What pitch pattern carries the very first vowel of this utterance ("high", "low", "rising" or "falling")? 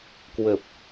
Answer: low